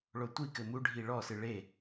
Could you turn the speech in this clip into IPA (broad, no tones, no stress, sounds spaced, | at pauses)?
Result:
ɭ o tʷ i k ɘ m u ɖʱ i ɭ ɔ s ɨ ɭ e